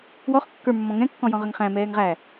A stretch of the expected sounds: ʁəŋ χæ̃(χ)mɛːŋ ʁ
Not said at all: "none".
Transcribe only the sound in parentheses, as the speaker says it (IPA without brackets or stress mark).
none